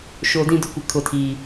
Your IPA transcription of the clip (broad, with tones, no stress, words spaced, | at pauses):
ʃo˨ dĩ˦dʊ˦kʷɪ˨ kʰʊ˨tʰi˨